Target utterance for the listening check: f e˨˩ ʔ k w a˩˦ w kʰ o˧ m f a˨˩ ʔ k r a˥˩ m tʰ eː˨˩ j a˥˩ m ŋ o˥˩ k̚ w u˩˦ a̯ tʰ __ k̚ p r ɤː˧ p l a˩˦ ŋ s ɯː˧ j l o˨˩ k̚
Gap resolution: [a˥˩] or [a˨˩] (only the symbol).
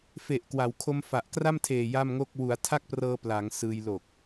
a˥˩